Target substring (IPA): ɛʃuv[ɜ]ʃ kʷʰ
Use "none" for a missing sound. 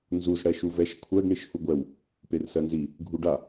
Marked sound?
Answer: ɛ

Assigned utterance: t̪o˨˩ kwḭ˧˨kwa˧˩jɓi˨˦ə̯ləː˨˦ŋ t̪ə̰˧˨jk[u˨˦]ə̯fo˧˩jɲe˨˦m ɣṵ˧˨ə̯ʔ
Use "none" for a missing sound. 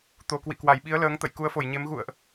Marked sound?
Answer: u˨˦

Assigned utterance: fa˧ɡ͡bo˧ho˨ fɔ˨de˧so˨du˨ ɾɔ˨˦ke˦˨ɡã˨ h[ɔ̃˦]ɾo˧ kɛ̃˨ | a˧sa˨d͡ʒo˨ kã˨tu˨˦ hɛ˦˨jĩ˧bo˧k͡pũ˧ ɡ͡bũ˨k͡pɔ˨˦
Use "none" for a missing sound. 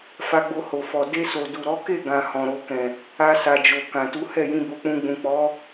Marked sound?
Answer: ɔ̃˨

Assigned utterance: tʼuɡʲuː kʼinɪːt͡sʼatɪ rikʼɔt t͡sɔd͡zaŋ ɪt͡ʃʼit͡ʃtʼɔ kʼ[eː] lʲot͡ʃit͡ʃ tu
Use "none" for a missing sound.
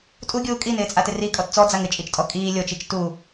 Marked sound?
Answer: iː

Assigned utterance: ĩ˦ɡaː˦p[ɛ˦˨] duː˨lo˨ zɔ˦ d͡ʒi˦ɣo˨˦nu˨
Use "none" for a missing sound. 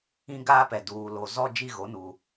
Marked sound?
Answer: ɛ˨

